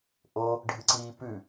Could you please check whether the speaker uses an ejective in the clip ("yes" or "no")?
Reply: no